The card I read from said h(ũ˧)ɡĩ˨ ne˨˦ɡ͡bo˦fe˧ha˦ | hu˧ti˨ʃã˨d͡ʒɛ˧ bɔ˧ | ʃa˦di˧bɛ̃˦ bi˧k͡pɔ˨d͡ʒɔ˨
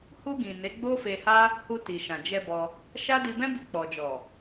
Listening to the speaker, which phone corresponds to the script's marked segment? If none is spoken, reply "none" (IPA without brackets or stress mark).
u˧